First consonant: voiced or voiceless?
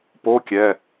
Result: voiceless